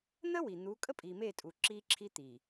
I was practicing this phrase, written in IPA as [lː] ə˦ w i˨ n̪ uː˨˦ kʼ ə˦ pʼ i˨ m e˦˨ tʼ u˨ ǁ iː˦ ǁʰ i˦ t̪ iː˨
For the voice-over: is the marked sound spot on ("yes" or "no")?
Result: no